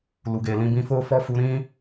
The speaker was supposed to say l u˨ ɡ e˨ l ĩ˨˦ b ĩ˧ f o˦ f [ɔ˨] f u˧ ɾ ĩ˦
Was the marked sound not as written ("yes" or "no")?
yes